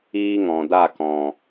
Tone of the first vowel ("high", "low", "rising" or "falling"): high